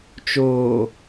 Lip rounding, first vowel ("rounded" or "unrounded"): rounded